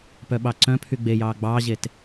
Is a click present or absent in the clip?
present